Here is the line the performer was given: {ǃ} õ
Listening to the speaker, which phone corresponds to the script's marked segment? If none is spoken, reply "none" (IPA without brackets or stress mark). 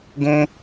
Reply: ɡ